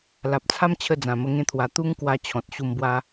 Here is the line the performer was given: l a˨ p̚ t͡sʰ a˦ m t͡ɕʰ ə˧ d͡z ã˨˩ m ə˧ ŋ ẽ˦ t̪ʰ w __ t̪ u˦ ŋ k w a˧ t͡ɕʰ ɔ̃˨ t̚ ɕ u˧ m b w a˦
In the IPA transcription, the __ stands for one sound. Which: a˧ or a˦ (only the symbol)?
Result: a˧